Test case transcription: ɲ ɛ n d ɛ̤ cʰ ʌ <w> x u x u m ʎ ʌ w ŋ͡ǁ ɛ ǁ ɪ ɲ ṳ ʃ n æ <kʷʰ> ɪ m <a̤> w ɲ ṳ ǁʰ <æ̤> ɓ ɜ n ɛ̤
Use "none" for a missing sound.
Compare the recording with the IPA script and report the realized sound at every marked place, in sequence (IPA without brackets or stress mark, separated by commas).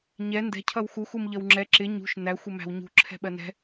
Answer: w, xʷ, æ̤, ɛ̤